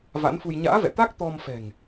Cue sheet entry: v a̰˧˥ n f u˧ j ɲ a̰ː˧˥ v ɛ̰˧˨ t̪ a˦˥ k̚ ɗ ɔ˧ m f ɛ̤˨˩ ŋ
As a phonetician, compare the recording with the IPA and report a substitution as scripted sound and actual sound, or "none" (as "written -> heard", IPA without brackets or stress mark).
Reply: ɗ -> t̪